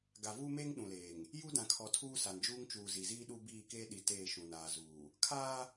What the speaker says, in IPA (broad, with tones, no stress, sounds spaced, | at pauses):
ɡ a˨ v uː˦ m eː˦ ŋ ɗ ũ˨ l eː˨ ŋ | j u˦ d ã˨ kʰ ɔ˨ tʰ uː˦ s a˨ n d͡ʒ uː˦ ŋ t͡ʃ uː˨ z i˨ z iː˦ ɗ u˦ b iː˦˨ k eː˦ ɗ i˨ t eː˦˨ ʃ ũ˨ n aː˨ z uː˨ | kʰ aː˦